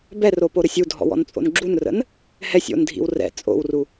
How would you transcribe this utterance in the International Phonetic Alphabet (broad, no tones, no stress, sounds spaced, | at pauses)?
b ɛ r o p o ɾ ə sʲ u dʱ ɔ̰ w ɔ̰ n t͡sʼ o̰ n ɡ͡ǁ u n r ə̰ n | h ɛ sʲ o̰ n dʱ ḭ w r ɛ̰ t͡sʼ o̰ w r u